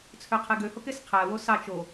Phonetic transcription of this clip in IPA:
t͡sʰøqʰeɡøhok esqʰæwo sɑt͡ʃ o

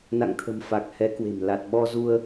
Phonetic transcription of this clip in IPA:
na̰˧˨ŋt̪ʰə̤˨˩m fa˨˩k̚ hɛ˨˦kwe̤˨˩m la˨˩t̚ɓɔ˧zu˧ə̯

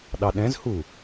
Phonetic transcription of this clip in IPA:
ɗɑɗɛ̃zhu

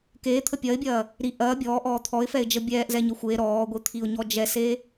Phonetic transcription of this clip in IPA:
keːt̪ʰə pʲɐɪ̯bʲɐː | ɾi ʔɐː bʲɔːʔɔː t̪ʰɔɪ̯fɛɪ̯d͡ʒə bʲɛːʔzɛɲə xʷe ɾɔːɡʷit̪ʰiʊ̯ɲɔ d͡ʒɛse

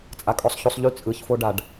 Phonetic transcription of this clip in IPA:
t͡sʼakʼɔsˤçosˤʎy t͡sʼɯçfoɖaɖ

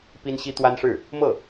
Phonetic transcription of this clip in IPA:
pi˥nɕi˥ t̪wa˥nʂɻ̩˥˩ | mɤ˥˩

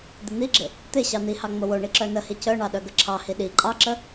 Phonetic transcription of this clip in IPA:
d̪ɪn̪iɡ͡ǁɪ | t̪ɪ ɕɑn̪ihɑ ŋ͡mowoɳi ǁœnəhi cœɳɑ ɗœɡəǁʰɑhi ɗi ǃʼɑǁə

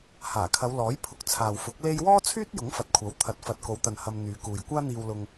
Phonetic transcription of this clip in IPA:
haː˨˩kʰɐ˨˧wlɔː˨˥jpʰʊ˨˥k̚ t͡sʰaː˨wfʊ˨˥k̚ le˥j wɔː˥t͡sʰyː˥t̚ jʊ˨˥ŋfɐ˨t̚kʷʰɐ˨˥w t̪ʰɐ˨˥t̚fɐ˨t̚ko˨˧wt̪ɐ˨n hɐ˧mn̪yː˨˧kuː˨j kʷaː˥n̪iː˧wlʊ˧ŋ

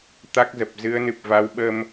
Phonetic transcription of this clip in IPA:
t̪a˦˥k̚zə˨˩p̚ zɨ˨˦ə̯nɨ˨˩p̚va˨˦wɓə˧m

